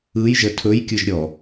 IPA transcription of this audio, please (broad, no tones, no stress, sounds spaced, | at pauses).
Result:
ɯ j ʒ ə tʰ ɵ j kʲ ɯ ʒ ɾʲ ɔ